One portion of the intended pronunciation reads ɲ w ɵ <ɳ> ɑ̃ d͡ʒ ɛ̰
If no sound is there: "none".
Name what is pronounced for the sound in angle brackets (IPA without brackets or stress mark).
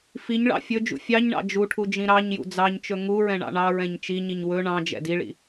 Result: ɳ